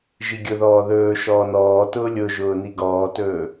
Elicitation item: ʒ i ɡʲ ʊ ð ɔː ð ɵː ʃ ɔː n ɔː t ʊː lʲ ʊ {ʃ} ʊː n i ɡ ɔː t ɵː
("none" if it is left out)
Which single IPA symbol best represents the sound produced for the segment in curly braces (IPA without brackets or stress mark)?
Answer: ʒ